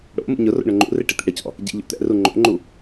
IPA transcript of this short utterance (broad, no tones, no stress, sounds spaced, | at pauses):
ɽ o̰ m ṵ ɲ ʊ r o̰ ɳ ʊ ŋ͡ǃ ṵ r e ʈ ɪ t̪ ḭ ɽ ɪ c ɔ̰ | ɟ ḭ ʎ o̰ t̪ ɛ̰ r u ŋ͡ǃ o̰ ŋ͡ǃ u